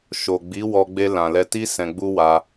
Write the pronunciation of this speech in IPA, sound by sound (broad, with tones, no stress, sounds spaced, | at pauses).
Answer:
ʃ o˨ ɡ͡b i˨˦ w ɔ˧ ɡ͡b e˧ l ã˨ l ɛ˧ t i˦ s ɛ̃˧ ɡ͡b u˦ w a˧